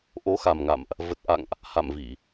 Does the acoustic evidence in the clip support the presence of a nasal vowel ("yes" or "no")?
no